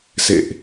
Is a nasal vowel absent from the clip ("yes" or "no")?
yes